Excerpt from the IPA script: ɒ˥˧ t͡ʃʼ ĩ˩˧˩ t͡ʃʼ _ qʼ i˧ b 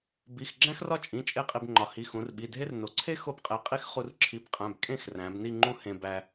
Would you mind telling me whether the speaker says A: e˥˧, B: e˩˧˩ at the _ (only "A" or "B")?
A